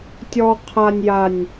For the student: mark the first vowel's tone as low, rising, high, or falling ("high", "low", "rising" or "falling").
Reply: low